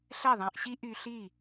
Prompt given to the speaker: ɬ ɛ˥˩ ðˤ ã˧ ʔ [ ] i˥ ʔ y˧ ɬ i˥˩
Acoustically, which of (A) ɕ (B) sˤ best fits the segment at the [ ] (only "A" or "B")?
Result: A